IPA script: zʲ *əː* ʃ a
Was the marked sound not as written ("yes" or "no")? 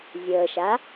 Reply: no